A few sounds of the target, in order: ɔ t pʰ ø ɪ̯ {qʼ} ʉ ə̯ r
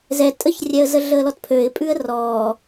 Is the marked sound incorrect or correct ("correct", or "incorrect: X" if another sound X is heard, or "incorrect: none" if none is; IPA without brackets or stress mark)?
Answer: incorrect: pʼ